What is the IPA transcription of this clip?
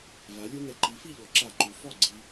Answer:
v a˩˧ lʲ u˧ n ɛ˩˧ ǃ i˩˥ f i˥˨ ʎ ɔ˩˧ ǁ a˧˩˧ ǃ u˩˥ f ɔ˥˨ ɡ͡ǀ i˧

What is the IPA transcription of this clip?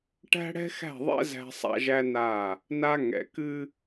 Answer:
ʈ æ̤˦ ɽ ɛ̤˦ x æ̤˦˨ ðˤ ɛ̰˦ z æ̤˦ sˤ a̰˦ ʒ æ˦ n a˦˨ | n a˦ ŋ ɛ̰˨ k ɨ˦

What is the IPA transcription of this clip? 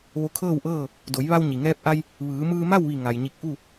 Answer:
ʋ o˧ kʰ ɤː˥˨ w ʔ ɤː˥˨ | d o˩˧ j ʋ a˧ w ɲ i˩ ŋ ɛː˧ p̚ ʔ a˧ j | ʋ ɯː˩˧ m ɯː˧ m a˥˨ w ʋ i˧˩ ŋ a˩ j ɲ i˧˩ k̚ ʔ u˥˨

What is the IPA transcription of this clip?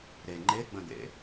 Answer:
ɾ e ŋ͡ǃ e ɡ͡b ə̃ d̪ ḛ

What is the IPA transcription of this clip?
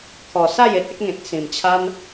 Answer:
kʰ ɔ˨˩ s a˥˧ j e˨ t̚ e˦ k̚ ŋ ẽ˨ t̚ s ĩ˨˩ m t͡ɕʰ a˦ n

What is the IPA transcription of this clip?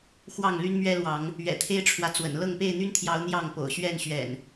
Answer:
x w ɑ˥˨ ŋ l y˦ n m ɥ ɛ˦ l w ɑ˨˦ ŋ | ɥ ɛ̰˨˩ t̪ʰ e˦ ɪ̯ ʈ͡ʂʰ w ä˨ t͡s w ə̰˨˩ n l ɤ˥˨ ŋ p e˥˨ ɪ̯ n̪ y˦ n t̪ʰ j ɑ˨˦ ʊ̯ n̪ j ɑ˥˨ ŋ p o̰˨˩ ʊ̯ ɕ ɥ ɛ˥˨ n ɕ ɥ ɛ̰˨˩ n

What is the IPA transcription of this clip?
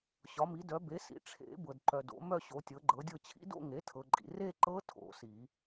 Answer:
ɕ ɒ˩˥ m i˩˥ d œ˩˥ b e˩˥ s ḭ˩˥ ʈ͡ʂʰ ḛ˨˩˦ b ɤ˨ d ǃ œ˨ d o̰˩˥ m œ˥˧ ɕ o˩˥ tʲ ɤ˩˥ ɡ͡ǃ ɤ˩˥ dʲ ɤ˥˧ t͡ɕʰ ḭ˦˥ d o̰˥˧ ŋ e˩˥ tʰ ɤ˨ ǃʼ ḭ˨ r e˥˧ ǃ ɤ˦˥ tʰ o̰˨˩˦ s i˨˩˦

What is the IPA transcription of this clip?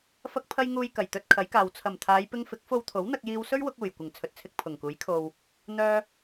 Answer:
f ɐ˧ k̚ pʰ ɐ˧ j ŋ uː˨ j k ɐ˨˩ j t̪ ɵ˧ t̚ kʰ ɐ˨˥ j k aː˨ w t͡sʰ ɐ˨˩ m t̪ʰ aː˨˧ j p ɪ˧ ŋ f ɪ˨˥ k̚ f o˧ w t̪ʰ o˨˥ w n̪ ɐ˧ k̚ j iː˧ w s ɵ˥ ɥ w ʊ˧ k̚ uː˨˩ j kʷ ɪ˨˩ ŋ t͡sʰ ɵ˨ t̚ t͡sʰ ɪ˧ k̚ pʰ ʊ˨˩ ŋ k uː˨˥ j kʰ o˨ w | n̪ œː˧

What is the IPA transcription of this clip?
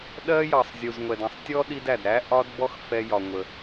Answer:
ɗ ɜ˥ j ɑ˨ sˤ zʲ u˨ z ŋʷ ɛ˨ d ɛ̃˨ sˤ tʲ ɔ˥ ɗ i˦ d æ˩ d ɾ æ˥ ʔ ɒ˥ d b ɔ˥ x f ɛ˥ j ɒ˨ ŋʷ ə˩

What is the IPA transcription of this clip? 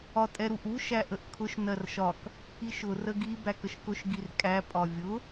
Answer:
ɒ tʼ ɛ ɾ u ʔ u ʃ æ ʔ ə ʔ kʰ ʊ ʃ n ɜ r ʃ ɒ k | i ʃ ʊ r ə ɡ i b æ k ə ʃ k ʊ ʃ ɡ i r kʼ æ pʼ ɒ vʲ ʊ

